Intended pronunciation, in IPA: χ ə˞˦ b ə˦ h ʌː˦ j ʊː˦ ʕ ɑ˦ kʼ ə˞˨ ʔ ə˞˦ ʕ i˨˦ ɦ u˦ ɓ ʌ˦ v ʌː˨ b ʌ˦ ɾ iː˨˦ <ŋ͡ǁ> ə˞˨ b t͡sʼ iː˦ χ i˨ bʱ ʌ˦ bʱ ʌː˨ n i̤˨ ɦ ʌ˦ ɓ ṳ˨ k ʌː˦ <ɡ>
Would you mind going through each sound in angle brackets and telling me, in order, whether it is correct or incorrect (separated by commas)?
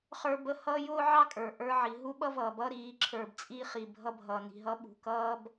incorrect, incorrect